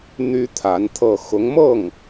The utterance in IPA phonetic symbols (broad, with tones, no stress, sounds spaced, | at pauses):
n̪ y˥ t̪ʰ a˧˥ n t̪ʰ ɤ˥˩ x ʊ˧˥ ŋ m ɤ˥˩ ŋ